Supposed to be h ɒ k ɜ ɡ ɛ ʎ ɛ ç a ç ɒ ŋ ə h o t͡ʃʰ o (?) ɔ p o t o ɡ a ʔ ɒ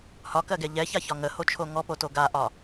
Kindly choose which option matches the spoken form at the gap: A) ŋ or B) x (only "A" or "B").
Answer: A